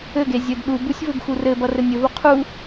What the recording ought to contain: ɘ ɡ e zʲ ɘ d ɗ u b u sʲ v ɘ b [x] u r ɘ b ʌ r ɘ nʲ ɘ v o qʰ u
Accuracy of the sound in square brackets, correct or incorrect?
correct